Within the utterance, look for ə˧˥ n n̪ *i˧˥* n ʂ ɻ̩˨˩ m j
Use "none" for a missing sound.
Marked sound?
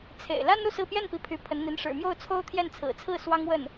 i˧˥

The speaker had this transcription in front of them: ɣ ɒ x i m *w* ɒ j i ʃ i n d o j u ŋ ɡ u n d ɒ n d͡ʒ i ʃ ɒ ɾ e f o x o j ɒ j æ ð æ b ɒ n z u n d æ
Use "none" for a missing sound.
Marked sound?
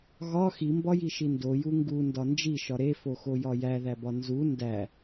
b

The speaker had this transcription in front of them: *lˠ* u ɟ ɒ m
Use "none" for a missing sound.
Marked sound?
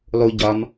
lˠ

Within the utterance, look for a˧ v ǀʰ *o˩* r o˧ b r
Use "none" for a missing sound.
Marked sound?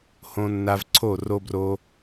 o˥˩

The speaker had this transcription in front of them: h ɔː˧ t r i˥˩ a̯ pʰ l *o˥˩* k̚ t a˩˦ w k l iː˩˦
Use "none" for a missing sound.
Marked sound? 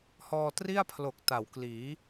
o˨˩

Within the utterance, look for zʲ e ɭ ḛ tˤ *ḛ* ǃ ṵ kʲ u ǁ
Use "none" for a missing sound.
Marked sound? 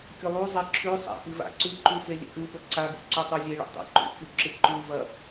ḛ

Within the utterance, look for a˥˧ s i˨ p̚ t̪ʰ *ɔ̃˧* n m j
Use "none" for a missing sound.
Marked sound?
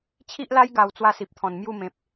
ɔ̃˨˩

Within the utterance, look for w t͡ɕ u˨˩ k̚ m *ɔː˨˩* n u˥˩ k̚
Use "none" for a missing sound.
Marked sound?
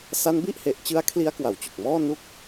ɔː˥˩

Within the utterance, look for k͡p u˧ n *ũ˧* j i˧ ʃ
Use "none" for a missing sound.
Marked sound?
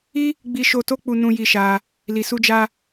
ũ˧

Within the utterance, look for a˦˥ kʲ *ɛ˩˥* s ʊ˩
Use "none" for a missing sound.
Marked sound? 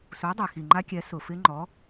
ɛ˩˥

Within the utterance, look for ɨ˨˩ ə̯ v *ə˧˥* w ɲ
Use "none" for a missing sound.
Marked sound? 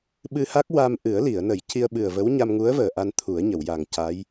ə˧˥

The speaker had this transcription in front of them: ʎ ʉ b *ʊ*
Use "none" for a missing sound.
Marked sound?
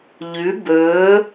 ɵ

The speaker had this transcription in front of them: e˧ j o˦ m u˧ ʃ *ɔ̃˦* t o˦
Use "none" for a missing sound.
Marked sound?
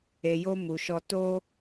ɔ˦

